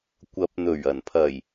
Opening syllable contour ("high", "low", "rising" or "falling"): rising